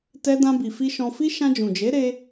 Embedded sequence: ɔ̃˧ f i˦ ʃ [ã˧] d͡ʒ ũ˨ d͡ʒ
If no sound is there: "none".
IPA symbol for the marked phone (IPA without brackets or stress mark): ã˧